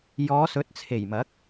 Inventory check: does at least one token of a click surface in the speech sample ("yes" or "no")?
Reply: no